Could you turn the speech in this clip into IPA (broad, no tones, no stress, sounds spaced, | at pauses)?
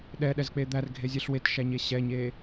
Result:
ɗ ɛ ɗ ɛ z k͡p e d̪ æ r ɡʱ e zʲ ɛ ɬ w e t ʃ æ ɲ e ɕ ɛ ɲ e